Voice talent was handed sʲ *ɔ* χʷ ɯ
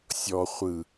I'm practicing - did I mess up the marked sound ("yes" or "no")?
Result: no